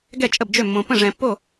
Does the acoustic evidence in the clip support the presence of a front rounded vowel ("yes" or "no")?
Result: yes